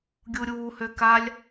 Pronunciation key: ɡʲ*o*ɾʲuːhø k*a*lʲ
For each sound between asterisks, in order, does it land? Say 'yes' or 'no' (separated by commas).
no, yes